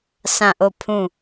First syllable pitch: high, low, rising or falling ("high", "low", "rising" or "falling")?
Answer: falling